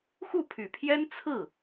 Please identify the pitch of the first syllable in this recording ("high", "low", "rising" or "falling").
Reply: falling